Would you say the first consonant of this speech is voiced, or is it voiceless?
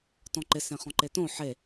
voiceless